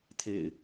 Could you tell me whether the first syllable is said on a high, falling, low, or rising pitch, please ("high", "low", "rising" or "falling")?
low